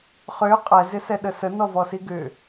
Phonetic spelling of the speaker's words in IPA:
χ ʏː qʼ ɛ z ɪ s ɛ ɗ ə s ə n ɔ v ɔ s i ɡ ʏ

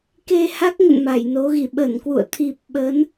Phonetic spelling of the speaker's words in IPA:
k e˧ h a˦˥ k̚ ŋ ə̰˧˨ n m a˧˩ j n o˨˦ ɣ i˧˩ ɓ ə˧˩ n k w ṵ˧˨ ə̯ t̪ʰ i˨˩ p̚ ɓ ə˨˦ n

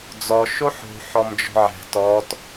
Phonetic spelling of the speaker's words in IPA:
d͡z ɔ ʃ o ħ o̤ ħ ɔ m d͡ʒ ɔ̤ ʕ ɛ̤ t ɔ t

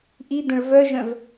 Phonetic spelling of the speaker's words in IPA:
ʔ i d̪ ə̃ ɭ v œ ʒ œ̃ v

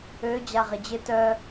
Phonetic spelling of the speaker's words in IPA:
ø d͡ʑ a ʁ ɪ d͡ʑ ɪ t œ

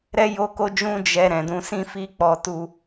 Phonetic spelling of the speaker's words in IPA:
ɾ ɛ˦ j o˦ k o˦ d͡ʒ ũ˦ d͡ʒ ɛ˧ ɾ ɛ̃˨ d ũ˧ s ĩ˦ f i˦ k͡p ɔ˧ t u˧

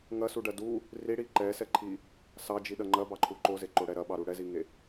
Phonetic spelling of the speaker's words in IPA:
ŋ ɐ s u ɖ ɐ d u | r i ɽ i ǃ ɛ s ɛ ǃʰ i | s ɑ d͡ʒ i ɗ ɐ ŋ͡ǃ ɐ b ɑ ǃʰ u ǃ o z e ǃ o ɽ ɛ ɾ ɐ ɓ ɑ ɾ u ɽ ɛ z i ŋ e

